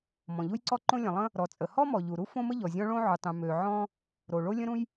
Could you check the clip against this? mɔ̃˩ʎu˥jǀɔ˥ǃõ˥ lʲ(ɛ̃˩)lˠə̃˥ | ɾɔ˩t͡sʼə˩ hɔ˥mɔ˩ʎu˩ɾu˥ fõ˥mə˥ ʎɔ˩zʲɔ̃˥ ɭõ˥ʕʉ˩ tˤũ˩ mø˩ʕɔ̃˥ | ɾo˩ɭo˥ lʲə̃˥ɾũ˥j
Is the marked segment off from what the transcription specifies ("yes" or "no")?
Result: yes